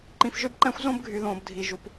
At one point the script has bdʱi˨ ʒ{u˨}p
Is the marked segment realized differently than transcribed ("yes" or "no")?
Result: no